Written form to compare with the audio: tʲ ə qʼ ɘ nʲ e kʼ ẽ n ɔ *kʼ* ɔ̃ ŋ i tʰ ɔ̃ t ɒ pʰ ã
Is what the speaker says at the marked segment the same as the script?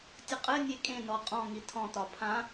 no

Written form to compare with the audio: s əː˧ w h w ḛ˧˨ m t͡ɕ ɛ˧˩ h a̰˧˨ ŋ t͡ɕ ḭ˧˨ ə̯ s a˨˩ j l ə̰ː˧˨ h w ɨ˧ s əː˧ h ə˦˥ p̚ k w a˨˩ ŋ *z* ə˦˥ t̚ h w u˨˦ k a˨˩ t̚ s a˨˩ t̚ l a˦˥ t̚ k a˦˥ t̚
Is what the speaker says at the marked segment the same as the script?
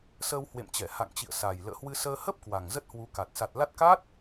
yes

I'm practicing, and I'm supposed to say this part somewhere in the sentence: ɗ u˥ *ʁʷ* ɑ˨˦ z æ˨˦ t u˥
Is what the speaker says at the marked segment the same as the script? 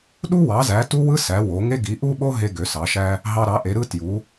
no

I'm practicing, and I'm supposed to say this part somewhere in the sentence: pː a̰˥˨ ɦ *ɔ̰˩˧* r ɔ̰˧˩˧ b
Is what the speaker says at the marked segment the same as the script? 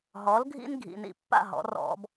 yes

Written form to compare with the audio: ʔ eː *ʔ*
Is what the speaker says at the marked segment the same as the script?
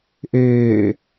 no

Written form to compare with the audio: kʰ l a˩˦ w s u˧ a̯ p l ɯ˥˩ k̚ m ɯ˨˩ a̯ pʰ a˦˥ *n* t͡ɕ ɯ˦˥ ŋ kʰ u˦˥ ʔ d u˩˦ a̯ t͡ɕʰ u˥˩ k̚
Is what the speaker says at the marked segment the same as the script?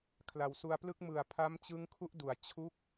no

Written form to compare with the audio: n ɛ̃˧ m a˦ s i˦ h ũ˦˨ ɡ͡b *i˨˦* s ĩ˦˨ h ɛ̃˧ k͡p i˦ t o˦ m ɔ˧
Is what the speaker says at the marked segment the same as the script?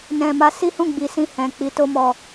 yes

